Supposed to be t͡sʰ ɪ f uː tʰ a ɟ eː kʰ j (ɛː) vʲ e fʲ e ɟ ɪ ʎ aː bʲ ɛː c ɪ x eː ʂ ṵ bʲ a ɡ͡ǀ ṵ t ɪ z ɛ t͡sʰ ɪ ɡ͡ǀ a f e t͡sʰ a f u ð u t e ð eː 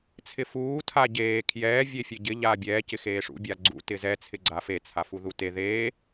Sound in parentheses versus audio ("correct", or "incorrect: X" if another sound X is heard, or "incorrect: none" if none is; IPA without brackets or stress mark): correct